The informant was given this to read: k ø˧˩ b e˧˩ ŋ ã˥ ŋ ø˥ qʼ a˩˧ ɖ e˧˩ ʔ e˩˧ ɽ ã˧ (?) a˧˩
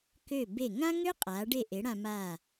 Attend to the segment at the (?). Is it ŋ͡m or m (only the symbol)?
m